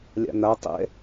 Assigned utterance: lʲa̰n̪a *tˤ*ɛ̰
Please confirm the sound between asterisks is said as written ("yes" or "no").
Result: yes